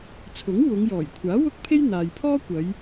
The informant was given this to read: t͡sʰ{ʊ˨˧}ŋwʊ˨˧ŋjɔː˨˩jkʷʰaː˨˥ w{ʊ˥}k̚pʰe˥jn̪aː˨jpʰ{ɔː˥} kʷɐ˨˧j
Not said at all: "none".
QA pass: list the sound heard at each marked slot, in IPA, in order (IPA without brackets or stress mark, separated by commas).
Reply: ʊ˨˥, ʊ˥, ɔː˥